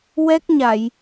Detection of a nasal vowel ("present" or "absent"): absent